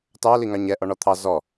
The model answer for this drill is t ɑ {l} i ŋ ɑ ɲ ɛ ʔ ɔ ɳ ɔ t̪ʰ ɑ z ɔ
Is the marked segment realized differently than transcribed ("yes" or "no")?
no